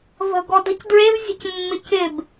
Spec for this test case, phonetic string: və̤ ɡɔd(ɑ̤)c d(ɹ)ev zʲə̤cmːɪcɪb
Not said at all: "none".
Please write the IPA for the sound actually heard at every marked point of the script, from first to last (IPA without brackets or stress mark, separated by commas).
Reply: ə̤, ɹ